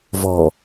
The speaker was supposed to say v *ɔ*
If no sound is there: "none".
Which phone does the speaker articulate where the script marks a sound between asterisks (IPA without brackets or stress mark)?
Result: ɔ